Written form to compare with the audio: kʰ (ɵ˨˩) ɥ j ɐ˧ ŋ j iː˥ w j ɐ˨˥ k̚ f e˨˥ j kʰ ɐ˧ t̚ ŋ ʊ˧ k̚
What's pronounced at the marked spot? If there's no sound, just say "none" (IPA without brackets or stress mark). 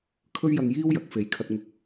ɵ˥